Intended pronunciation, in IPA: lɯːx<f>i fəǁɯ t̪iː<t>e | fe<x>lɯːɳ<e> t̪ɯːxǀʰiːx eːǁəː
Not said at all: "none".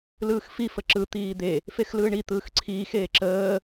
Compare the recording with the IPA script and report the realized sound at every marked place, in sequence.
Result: f, d̪, x, i

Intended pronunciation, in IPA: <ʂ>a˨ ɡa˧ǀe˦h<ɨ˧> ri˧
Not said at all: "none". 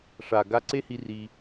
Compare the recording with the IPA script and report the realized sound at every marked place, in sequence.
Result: ʂ, i˧

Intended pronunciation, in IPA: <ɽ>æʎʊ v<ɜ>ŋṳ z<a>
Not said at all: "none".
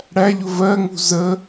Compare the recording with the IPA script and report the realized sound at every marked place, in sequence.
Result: ɽ, ɜ, ə

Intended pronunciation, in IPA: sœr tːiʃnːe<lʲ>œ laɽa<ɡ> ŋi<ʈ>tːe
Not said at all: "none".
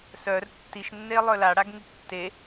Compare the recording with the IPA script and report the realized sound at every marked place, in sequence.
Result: lˠ, ɡ, ʈ

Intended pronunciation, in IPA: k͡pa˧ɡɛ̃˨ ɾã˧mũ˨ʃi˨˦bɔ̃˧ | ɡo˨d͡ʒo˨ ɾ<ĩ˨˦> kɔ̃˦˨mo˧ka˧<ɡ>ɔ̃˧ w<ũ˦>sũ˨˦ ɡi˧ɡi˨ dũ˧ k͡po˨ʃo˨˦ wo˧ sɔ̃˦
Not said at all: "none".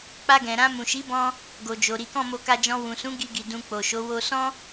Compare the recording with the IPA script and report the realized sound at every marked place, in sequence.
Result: i˨˦, d͡ʒ, ũ˨

